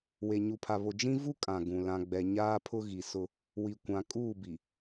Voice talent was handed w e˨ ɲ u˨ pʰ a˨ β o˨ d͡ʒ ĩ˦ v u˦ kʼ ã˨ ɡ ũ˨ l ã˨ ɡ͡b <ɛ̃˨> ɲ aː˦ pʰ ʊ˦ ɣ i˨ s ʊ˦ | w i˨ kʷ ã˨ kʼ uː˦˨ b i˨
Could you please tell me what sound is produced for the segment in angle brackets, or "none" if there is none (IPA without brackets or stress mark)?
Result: ɛ˨